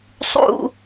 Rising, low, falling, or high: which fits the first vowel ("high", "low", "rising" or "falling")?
high